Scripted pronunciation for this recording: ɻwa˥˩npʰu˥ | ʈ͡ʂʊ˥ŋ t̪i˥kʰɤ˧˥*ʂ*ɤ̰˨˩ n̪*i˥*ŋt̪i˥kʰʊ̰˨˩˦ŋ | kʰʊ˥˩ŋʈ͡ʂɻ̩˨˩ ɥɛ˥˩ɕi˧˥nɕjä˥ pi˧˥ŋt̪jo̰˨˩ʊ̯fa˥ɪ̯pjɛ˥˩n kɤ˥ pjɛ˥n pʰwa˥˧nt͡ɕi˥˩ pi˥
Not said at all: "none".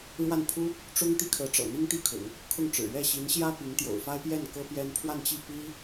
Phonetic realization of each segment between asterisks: ʈ͡ʂ, i˥

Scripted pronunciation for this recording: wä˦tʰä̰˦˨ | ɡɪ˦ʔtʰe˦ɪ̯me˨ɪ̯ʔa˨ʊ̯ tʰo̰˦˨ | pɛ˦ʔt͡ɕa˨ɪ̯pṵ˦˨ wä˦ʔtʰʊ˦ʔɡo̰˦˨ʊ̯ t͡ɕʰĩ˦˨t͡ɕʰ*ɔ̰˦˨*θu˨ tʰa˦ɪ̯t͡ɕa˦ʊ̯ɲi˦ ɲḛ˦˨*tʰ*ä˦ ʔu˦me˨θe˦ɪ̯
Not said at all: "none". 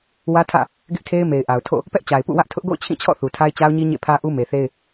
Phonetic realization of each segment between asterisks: ɔ̰˦˨, pʰ

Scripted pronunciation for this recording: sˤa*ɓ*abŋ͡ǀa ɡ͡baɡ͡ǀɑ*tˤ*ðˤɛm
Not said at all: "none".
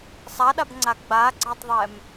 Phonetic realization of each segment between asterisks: ɗ, tˤ

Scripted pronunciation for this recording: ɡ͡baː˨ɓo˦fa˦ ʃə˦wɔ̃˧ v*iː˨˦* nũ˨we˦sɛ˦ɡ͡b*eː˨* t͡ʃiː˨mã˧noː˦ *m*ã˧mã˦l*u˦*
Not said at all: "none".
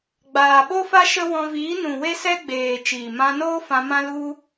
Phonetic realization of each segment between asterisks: iː˨˦, eː˨, f, u˦

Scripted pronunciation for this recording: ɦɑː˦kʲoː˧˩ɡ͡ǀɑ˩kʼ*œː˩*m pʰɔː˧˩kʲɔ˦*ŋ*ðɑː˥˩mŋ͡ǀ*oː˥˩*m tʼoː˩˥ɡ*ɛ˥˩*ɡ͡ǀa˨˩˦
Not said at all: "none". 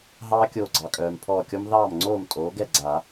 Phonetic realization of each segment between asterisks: œː˩, m, oː˥˩, ɛ˥˩

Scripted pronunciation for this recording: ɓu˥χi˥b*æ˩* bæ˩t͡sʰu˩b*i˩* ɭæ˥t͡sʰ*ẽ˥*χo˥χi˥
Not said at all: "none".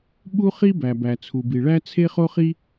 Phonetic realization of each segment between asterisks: æ˩, i˩, e˥

